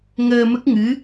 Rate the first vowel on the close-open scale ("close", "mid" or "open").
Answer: mid